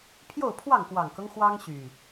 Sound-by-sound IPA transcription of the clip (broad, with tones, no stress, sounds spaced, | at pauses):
pʰ j o˥˨ ʊ̯ pʰ w ɑ˥˨ ŋ k w ɑ˨˩ ŋ k ɤ˦ ŋ x w ɑ˦ ŋ ɕ y˨˩